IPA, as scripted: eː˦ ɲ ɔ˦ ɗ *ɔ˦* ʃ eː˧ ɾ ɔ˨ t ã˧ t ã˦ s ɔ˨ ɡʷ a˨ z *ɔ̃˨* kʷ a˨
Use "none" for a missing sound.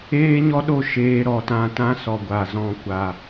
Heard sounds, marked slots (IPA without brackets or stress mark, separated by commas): o˦, ɔ̃˧